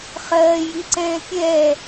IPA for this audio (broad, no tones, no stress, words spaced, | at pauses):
χɜːjiǀɛ̃ː pʲɛ